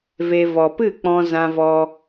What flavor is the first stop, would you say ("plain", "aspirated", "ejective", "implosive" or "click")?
plain